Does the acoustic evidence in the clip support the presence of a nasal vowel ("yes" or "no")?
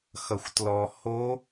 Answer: no